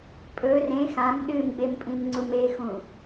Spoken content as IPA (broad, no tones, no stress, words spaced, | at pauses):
pʼɵ rẽ xãm ɗɨmɡ͡bempʼĩmŋ͡ǀum exũ